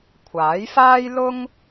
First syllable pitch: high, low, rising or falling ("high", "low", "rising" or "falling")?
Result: rising